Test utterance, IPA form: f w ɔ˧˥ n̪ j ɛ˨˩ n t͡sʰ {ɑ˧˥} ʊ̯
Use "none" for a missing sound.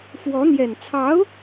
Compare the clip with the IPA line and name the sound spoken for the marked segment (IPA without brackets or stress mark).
ɑ˧˥